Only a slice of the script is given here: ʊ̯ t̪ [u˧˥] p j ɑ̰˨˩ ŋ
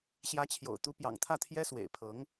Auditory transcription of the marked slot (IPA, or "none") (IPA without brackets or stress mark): u˧˥